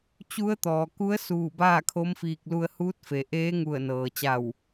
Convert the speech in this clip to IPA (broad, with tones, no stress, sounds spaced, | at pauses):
t͡ɕ u˧˥ ə̯ t̪ ɔː˩ k u˧˥ ə̯ s uː˧˩ b aː˥˨ kʰ o˧˥ m f iː˧ k̚ l u˧ ə̯ h uː˧˥ t̚ f e˩˧ ʔ eː˧˥ ŋ u˧˩ ə̯ n ɤː˩ t͡ɕ a˧˩ w